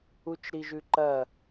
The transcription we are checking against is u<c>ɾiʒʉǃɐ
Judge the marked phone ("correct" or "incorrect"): incorrect